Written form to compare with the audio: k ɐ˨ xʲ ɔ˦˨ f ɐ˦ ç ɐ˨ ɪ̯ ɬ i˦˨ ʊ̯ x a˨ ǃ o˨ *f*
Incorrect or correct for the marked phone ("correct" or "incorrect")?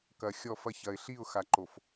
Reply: correct